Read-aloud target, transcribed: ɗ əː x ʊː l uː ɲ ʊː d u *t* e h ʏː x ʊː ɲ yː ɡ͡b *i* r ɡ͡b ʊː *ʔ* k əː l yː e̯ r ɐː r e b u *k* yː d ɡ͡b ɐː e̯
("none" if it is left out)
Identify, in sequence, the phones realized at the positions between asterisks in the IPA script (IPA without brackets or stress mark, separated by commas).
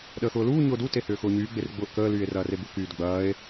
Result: t, e, ʔ, k